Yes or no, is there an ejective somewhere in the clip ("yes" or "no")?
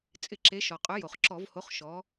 yes